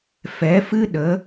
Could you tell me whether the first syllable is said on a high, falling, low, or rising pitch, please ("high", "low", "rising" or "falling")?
rising